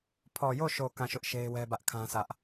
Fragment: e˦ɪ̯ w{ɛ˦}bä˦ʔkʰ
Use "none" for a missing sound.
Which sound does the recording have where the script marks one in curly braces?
ɛ˦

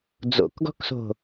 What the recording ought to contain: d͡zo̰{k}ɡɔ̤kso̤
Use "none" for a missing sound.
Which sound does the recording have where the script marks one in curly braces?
k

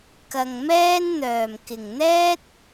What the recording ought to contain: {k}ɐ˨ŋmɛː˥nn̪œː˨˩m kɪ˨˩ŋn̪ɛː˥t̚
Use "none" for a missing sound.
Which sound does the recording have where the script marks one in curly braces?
k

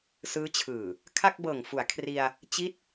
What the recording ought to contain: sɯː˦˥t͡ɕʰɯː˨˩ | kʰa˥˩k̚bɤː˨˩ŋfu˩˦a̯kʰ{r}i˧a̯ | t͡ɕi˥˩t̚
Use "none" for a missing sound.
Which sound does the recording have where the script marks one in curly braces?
r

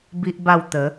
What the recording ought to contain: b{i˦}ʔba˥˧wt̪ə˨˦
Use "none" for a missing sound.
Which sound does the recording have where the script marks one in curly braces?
i˦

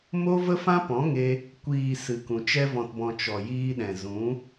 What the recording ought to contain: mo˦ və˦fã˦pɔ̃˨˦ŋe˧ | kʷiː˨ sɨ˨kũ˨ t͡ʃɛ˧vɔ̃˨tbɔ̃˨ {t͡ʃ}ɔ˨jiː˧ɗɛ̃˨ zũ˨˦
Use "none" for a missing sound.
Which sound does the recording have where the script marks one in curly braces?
t͡ʃ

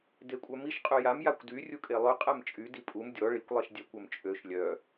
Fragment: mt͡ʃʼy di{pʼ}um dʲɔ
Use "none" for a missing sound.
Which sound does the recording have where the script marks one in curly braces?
pʼ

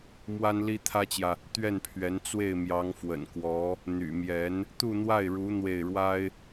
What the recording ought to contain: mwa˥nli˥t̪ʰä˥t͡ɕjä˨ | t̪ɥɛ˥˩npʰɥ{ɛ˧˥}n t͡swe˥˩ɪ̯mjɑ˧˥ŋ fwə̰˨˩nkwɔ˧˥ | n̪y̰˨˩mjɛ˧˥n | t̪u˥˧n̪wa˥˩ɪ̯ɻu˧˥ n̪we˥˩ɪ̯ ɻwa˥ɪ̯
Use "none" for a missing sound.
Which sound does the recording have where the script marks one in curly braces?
ɛ˧˥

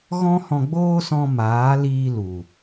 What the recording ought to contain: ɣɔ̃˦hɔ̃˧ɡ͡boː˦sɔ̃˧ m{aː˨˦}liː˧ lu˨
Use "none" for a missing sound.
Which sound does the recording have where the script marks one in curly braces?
aː˨˦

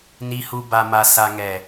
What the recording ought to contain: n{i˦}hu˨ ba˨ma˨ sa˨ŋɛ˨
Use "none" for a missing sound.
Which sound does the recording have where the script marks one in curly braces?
i˨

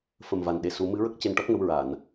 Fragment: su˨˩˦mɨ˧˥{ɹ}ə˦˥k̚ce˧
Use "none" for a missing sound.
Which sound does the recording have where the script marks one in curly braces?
ɹ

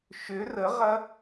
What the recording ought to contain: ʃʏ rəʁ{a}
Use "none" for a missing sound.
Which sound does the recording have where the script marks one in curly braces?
ɐ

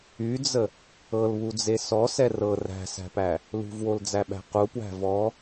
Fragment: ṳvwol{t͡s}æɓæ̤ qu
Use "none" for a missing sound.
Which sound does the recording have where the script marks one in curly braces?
d͡z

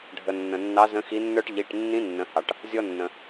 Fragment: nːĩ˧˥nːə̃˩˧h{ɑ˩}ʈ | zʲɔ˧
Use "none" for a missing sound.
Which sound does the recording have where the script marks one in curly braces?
ɑ˩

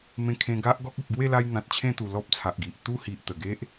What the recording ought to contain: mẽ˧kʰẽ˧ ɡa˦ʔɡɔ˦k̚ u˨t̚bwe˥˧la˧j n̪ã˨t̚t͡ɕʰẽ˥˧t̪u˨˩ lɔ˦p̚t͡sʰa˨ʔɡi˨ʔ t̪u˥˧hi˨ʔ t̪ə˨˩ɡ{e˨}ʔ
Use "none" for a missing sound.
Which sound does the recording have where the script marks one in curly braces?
e˦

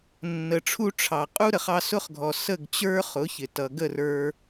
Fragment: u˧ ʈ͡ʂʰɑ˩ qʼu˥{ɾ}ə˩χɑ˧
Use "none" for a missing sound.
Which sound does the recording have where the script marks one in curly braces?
ɾ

